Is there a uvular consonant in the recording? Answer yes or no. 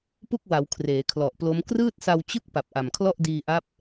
no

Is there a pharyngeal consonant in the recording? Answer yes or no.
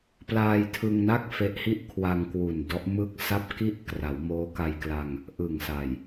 no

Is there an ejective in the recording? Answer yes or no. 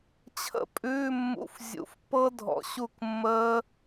yes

